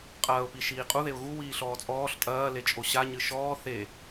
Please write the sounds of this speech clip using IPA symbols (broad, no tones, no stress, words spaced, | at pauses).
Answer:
qʼɐːʊ̯pi ʃiːqʼuðeʊ̯ ɣu wiːɬɔːt͡sʼɔːɬ tʼɐː let͡ʃʼoɕaɲɨ ʃɔː θe